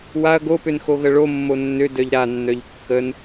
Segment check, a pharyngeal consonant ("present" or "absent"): absent